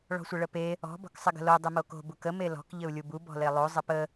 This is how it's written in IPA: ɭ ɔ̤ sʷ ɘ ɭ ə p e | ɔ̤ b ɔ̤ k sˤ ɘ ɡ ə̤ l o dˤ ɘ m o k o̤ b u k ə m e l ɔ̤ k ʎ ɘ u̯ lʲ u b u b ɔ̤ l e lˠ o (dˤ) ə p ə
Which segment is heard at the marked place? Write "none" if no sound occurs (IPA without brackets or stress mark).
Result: zˤ